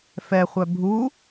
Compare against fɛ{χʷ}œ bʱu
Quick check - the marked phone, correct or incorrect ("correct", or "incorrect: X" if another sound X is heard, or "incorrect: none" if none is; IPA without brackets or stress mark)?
correct